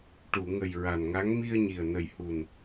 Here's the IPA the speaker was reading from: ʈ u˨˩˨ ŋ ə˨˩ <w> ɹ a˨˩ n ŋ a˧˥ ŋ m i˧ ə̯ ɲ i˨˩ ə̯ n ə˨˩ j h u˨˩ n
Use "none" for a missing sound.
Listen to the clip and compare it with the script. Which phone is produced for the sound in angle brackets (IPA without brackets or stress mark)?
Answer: j